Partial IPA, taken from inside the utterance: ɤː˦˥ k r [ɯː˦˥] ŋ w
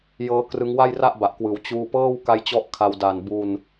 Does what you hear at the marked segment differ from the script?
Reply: yes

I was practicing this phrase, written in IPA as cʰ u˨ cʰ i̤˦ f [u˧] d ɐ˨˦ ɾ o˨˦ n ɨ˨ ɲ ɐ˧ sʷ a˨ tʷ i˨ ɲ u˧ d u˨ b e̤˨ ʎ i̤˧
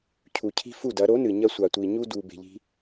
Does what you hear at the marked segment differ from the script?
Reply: yes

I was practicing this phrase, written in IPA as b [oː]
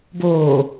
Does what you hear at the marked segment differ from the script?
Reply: no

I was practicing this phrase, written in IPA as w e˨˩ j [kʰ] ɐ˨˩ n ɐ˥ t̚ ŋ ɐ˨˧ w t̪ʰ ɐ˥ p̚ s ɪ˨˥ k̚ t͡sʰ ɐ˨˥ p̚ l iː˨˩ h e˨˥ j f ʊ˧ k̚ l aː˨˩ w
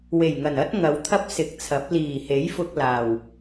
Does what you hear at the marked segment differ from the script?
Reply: yes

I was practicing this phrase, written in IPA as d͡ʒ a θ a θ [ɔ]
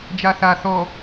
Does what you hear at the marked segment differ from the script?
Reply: no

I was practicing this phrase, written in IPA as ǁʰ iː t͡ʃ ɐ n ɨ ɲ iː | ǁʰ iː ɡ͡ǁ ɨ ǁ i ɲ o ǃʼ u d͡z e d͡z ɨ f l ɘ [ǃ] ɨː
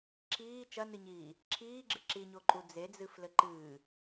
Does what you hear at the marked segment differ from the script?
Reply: no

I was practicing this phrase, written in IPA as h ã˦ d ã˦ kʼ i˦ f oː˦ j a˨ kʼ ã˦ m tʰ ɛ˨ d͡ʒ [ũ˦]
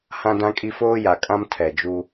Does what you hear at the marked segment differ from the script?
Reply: yes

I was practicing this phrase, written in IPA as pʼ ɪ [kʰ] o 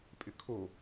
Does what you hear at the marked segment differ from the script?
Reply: no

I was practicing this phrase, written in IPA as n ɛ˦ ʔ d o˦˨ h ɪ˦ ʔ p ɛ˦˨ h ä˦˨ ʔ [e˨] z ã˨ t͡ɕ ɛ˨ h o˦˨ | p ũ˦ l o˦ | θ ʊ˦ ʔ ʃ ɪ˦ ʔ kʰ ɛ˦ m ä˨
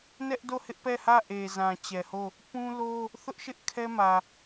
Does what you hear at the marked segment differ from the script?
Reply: no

